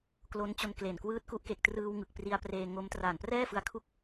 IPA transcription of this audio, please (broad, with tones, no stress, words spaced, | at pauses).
klo˦˥nt͡ɕo˧nkle˨˩n kwɯː˦˥t̚ku˦˥ʔ ke˨˩k̚trɯː˧w ŋɯ˨˩k̚pri˧a̯preː˧ ŋo˦˥m traː˨˩nprɛː˥˩fɯ˧a̯ kʰu˥˩k̚